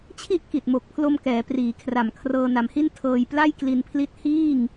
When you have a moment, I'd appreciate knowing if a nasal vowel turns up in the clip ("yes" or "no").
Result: no